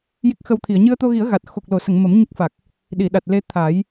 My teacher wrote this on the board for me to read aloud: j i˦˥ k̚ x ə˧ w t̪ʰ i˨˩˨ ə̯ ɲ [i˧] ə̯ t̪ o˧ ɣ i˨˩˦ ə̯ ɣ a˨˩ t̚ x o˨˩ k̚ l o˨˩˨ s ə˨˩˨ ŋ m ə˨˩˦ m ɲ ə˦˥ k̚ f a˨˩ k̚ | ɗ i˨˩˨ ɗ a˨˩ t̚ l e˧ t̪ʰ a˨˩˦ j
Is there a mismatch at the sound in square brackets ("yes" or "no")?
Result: yes